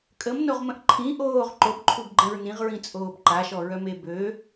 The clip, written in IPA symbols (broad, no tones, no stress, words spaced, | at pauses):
kʼəmnoʁmə̃ʔ ǃʰĩ ʔoːʁ ǃobǃʰubɡ͡ǃɛ̃ɹ nĩʁɹĩt͡sʼoːb ǃaʃɔɹœme bø